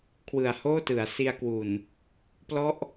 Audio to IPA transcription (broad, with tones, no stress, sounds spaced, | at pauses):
kʰ w ɯ˨˩ a̯ h oː˥˩ t ɯ˩˦ a̯ s i˧ a̯ k w u˨˩ n | p l ɔ˦˥ ʔ